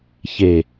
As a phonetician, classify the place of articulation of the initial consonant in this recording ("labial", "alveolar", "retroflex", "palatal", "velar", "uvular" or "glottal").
palatal